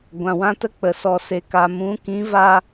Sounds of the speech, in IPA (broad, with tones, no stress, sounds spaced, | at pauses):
ɡʷ ã˨ w ã˦ t ə˦ k͡p ə˨ s ɔ˨ s e˨ k a˨ m ũ˨˦ k ĩ˨˦ v a˧